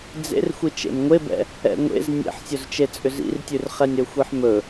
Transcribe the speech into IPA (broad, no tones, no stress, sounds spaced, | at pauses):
d͡z ḛ r xʷ i t͡ʃ ḛ m ŋʷ e b ɛ̰ | ɛ̰ ŋʷ ḛ z nʲ ḛ ħ sʲ ɵ z t͡ʃ e t͡sʼ ʏ z ḭ r tʲ ʉ r χ ɛ nʲ ɾ ɵ xʷ i ħ m ɵ